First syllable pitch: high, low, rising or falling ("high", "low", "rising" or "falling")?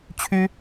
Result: high